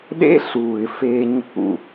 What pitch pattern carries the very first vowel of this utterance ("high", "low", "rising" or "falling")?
high